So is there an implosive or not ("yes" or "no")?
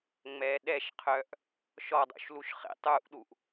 yes